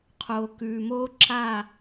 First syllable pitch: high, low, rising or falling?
low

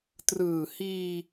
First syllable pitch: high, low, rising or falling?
low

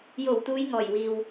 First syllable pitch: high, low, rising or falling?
low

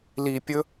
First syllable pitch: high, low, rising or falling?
low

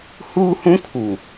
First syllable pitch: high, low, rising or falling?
high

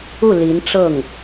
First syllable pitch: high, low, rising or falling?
falling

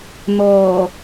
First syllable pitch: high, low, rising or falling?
low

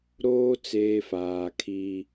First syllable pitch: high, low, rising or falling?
high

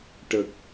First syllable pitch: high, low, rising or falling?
low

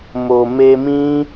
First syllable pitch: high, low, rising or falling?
low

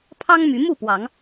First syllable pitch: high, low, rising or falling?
high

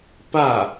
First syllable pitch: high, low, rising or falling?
falling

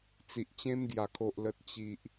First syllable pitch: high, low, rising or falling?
low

